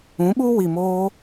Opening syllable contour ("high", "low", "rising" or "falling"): rising